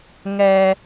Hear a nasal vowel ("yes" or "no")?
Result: no